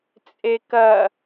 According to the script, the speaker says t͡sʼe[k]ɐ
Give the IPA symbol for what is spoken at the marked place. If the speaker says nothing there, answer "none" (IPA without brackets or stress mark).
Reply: k